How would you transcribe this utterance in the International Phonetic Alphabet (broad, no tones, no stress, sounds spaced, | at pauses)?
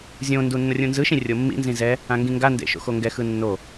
zʲ õ n d u nː ʌ rʲ ũ n z ɯ ʃ ĩ rʲ o mː ḭ n z ĩ z ɛ | ã ŋ ɡ ĩ ŋ ɡ a n d ḛ ʃ o̰ x o ŋ ɡ ɛ x ɯ nː o